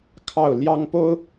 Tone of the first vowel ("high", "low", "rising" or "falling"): falling